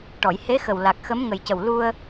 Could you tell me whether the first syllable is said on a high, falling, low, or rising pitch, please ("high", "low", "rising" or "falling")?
low